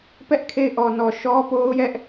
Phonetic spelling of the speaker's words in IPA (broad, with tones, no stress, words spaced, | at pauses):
pɛ˦ʔkʰe˦˨ɪ̯ ʔɔ˨nɔ˨ ʃɔ˦po˦ʊ̯jɛ˦ʔ